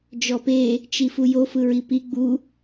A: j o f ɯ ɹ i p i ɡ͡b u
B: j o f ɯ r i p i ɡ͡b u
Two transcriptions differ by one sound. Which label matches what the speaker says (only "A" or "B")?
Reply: A